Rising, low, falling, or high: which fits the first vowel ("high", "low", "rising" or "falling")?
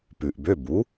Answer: low